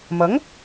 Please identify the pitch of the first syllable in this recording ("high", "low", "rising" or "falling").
rising